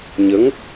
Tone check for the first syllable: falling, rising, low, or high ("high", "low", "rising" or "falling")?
rising